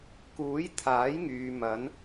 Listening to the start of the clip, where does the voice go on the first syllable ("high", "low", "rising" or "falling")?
rising